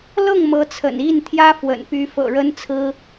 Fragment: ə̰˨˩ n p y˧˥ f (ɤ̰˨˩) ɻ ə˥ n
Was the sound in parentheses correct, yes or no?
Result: yes